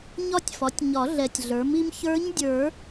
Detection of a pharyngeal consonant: absent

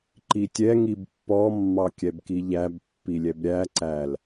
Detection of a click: present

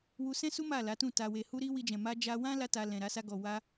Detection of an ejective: absent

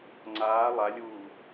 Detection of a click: present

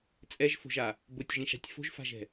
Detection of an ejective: present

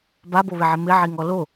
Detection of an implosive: absent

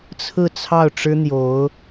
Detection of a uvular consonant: absent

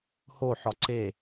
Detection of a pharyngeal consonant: present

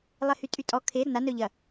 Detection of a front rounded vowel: present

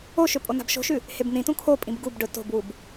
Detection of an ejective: present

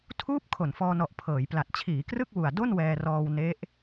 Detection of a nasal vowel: absent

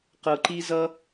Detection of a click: present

